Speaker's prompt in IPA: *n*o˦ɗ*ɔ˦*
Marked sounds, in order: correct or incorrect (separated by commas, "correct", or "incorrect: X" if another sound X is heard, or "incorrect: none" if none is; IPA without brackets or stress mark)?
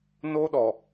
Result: correct, incorrect: ɔ˨